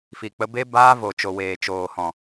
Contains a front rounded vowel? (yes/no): no